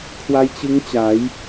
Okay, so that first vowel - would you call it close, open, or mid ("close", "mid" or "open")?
open